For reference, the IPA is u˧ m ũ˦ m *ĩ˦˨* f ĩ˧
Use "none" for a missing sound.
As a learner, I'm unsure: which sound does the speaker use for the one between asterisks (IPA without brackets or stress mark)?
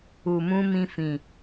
ĩ˦